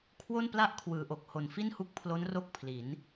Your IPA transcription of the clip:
kʰwo˥˩npla˥˩ʔkʰwɯː˩˦ʔo˨˩k̚ ho˨˩nfi˥˩nhu˦˥k̚pʰlo˦˥n ro˥˩k̚pʰli˩˦n

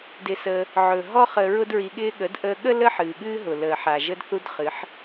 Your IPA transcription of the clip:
dɪ˧səː˧ | ʕɵ˨ ɦɔ˦ χə˧ ɹʊ˦dɹi˧ɠɪː˦ɠə˨˦d ʔəː˧ɠə˦ lə˦ħɨː˨ɠɨː˦ɦʊ˨ ləː˨ħa˨ ʒə˦dθu˦dχɨ˨˦ħ

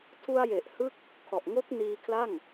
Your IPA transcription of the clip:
tʰu˧a̯je˨˩ʔhɯ˦˥k̚ | kʰɔ˨˩ʔŋo˦˥k̚niː˧kʰla˥˩ŋ

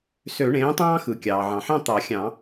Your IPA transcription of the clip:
sø˨˩˦ɳẽː˩˥tˤɑ̃ː˦xɯ˩ kʲɑː˩ʕɑ̃˩ħɑ̃˦˨ t̪ɑ˨˩˦xʲɑ̃˨˩˦

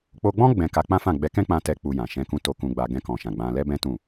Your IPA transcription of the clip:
k͡po˧ɡ͡bɔ̃˦ ɡ͡bɛ̃˧ka˧k͡pã˦ fã˦˨ ɡ͡bɛ˧kɛ̃˦ k͡pã˦tɛ˦k͡pu˧jã˨ ʃɛ̃˧kũ˧to˧ kũ˧ɡ͡ba˧ ɡɛ̃˧kɔ̃˨ʃã˨ ɡ͡bã˧ lɛ˦bɛ̃˦tũ˦˨

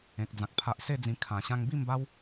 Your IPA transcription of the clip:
ẽ˨k̚d͡zã˨k̚ pʰa˨ʔ se˥˧d͡zĩ˧ kʰã˨˩ɕã˧ŋ bi˥˧mba˦w

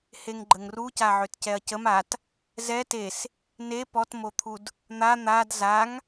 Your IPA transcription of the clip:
heŋɡ͡ǃəŋruca ʕøtcɛɐ̯cəm at | zɛ tes | ne pɔtmot̪ʰud | n̪a n̪ad zaŋ

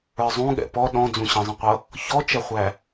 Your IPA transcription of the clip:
ə˞zˤũɠɛ̰ pɔ ɗɔ̃d͡zũ ɕə̃zˤə̃qʷʌ | çɔt͡ʃɛχʷæ

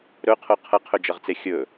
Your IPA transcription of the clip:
ɾɵqʰo qʰɐqʰɵd͡ʒɐʁt͡se xʲɵ

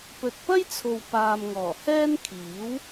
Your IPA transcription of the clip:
pɵ˨t̚pɐ˥jt͡sʰo˨w paː˨mŋɔː˨˩hɛː˥nkʰiː˨˥w

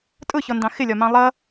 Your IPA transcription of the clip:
tʼʊçɔndɑ̃ xɪlʲɒmɑ̃ lˠʌ

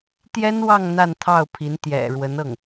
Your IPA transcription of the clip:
t̪jɛ˥nwɑ˥˧ŋ n̪a˥˧nt̪ʰɑ˥˩ʊ̯pʰi˧˥n t̪jɛ̰˨˩ɻwə˧˥nɤ˥˩ŋ

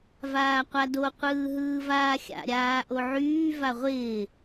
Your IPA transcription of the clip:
vaːqʷado qʷɯːɦɯːvaːxʲa̰ ɾʲaːʔoʕyː vaʁʷɪː

